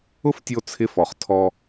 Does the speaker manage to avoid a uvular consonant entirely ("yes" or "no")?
no